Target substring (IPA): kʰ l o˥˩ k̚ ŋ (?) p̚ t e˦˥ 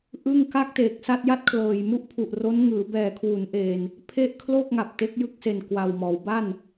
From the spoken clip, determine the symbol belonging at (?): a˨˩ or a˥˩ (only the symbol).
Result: a˨˩